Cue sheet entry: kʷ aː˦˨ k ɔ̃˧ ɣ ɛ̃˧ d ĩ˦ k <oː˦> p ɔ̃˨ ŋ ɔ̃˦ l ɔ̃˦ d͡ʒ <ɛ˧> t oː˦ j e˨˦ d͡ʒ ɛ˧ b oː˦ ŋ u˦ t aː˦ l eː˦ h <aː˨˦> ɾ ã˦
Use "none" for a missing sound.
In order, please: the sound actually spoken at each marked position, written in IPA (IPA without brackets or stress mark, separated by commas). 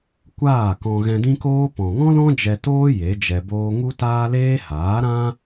oː˦, ɛ˧, aː˨˦